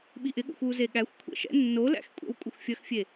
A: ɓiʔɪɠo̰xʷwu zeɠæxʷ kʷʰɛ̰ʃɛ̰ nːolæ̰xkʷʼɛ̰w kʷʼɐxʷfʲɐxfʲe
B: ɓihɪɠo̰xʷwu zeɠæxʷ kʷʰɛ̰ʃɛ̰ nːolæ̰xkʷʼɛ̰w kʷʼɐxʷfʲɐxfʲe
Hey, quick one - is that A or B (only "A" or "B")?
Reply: A